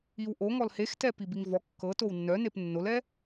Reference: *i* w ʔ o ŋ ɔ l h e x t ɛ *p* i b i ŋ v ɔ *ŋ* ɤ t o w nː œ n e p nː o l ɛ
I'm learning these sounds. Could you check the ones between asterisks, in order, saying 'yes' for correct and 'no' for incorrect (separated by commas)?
yes, yes, no